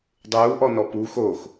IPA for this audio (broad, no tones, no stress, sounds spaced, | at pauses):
dˤ uː ʔ ɔ n ɔ p uː x oː x